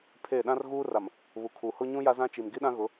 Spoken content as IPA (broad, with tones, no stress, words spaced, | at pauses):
pʰe˦˨ ɗã˦r ɣuː˦ra˨m | βu˨kʰuː˨ hʊ˦ɲũ˦ ja˦zã˦t͡ʃi˨m ɡi˦ɗã˦ɣʊ˨˦